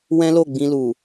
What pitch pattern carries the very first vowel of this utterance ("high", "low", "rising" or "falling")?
high